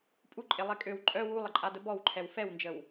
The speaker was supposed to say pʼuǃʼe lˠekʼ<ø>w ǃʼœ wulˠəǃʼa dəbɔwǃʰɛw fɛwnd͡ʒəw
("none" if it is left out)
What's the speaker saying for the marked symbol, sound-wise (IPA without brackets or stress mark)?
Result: ø